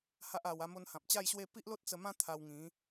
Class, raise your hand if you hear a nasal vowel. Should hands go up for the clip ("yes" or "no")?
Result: yes